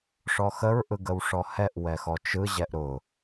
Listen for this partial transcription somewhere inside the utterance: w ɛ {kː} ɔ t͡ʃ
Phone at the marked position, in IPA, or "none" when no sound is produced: x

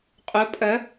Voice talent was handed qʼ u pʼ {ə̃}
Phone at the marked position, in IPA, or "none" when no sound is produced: ə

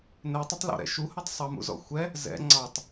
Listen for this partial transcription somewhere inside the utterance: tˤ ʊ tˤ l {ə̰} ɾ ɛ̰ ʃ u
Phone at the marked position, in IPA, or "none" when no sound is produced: ɔ̰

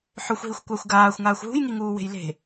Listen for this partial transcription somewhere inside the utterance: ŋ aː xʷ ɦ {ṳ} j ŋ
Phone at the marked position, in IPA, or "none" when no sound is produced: ṳ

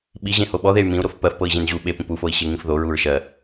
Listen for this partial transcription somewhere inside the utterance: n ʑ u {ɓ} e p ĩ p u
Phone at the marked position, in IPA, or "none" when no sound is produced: ɓ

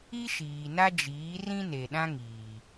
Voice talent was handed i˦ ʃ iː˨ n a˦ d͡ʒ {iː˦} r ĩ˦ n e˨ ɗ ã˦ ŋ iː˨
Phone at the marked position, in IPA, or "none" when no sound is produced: iː˨˦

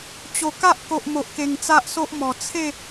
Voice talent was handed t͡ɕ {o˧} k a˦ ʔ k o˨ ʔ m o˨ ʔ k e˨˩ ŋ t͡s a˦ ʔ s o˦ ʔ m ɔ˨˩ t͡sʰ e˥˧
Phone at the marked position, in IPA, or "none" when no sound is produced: o˨˩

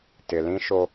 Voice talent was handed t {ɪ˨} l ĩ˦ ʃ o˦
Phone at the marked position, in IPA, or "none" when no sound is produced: ɪ˨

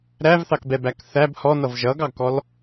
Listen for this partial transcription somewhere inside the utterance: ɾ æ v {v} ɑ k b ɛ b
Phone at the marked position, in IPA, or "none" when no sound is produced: θ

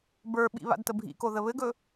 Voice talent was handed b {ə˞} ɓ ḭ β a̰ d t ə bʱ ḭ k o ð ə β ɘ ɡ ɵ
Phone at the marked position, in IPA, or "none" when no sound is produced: ə˞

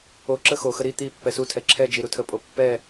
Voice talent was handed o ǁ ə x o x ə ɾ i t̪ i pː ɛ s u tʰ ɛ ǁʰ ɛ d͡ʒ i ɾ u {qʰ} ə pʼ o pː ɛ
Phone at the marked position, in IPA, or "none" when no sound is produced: tʰ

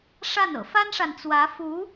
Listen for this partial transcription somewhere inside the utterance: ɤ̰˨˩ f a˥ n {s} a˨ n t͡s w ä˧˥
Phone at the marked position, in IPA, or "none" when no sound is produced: ʂ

